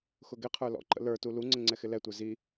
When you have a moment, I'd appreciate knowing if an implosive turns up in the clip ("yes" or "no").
no